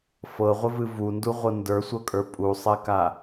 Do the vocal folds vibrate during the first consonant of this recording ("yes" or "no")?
no